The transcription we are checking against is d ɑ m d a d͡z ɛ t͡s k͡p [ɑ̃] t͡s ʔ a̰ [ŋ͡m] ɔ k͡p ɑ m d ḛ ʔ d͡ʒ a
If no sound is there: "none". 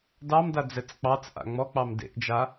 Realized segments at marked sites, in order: ɑ, ŋ͡m

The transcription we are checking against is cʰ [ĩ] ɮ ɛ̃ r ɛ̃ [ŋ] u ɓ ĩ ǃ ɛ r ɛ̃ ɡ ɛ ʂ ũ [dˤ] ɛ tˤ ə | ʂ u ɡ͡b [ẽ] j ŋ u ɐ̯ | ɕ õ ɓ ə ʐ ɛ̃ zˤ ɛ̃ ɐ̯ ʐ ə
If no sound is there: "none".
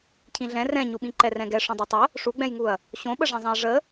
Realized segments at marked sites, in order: ĩ, ɲ, dˤ, ɛ̃

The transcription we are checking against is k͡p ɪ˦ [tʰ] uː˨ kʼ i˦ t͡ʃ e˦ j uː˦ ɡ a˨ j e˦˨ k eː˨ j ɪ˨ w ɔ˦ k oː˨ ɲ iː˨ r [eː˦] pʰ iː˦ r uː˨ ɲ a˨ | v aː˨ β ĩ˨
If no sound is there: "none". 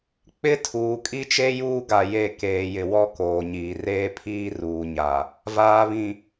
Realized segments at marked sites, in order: tʰ, eː˦

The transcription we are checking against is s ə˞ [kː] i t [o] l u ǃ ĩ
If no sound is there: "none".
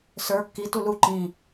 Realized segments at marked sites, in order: kː, u

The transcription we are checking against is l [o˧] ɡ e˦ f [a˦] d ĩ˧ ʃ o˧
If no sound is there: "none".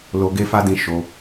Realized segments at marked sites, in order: o˧, a˦

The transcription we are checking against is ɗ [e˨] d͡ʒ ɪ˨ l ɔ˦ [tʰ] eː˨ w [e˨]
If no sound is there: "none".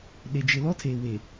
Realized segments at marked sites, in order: e˨, tʰ, e˨

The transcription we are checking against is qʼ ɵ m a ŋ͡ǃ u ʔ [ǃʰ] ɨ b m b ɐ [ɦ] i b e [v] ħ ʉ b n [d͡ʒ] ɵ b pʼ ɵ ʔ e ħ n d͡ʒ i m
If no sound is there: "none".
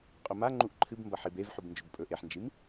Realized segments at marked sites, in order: ǃʰ, ħ, v, d͡ʒ

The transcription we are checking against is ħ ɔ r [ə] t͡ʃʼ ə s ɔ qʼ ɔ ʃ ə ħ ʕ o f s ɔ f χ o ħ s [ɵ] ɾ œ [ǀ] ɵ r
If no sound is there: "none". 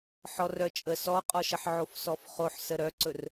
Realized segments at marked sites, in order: œ, ə, ǀ

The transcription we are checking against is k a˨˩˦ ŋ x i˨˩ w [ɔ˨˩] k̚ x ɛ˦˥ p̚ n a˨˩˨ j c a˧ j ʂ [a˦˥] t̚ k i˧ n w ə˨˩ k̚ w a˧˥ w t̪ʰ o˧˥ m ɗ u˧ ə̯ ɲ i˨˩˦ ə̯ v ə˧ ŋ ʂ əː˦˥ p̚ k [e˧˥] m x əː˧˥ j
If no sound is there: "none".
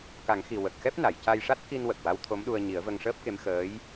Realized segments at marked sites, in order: ə˨˩, a˦˥, e˧˥

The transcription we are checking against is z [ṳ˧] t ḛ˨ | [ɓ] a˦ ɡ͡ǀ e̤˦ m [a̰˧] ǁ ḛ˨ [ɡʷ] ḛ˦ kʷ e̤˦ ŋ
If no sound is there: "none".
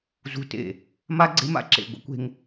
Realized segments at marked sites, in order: ṳ˧, m, a̰˧, ɡʷ

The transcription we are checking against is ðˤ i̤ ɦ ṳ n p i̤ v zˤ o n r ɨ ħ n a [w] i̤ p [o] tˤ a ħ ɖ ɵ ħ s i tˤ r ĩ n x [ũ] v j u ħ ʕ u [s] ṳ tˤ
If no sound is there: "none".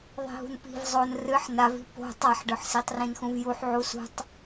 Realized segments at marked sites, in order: v, o̤, ũ, s

